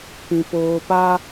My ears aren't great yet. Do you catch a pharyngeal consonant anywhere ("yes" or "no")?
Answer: no